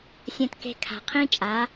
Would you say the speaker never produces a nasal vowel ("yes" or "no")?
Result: no